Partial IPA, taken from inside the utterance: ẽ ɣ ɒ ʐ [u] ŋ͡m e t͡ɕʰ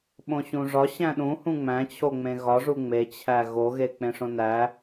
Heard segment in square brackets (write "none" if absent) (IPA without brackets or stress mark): u